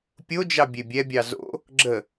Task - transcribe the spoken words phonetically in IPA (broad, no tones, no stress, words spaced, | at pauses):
pʲod͡ʒɑ bʲebʲɛbʲɑ zo̰ | ɡ͡ǁə